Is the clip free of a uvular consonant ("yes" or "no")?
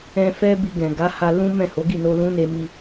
yes